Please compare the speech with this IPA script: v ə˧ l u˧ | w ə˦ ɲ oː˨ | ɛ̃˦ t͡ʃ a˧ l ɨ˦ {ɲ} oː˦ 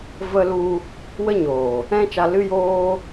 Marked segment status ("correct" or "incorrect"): incorrect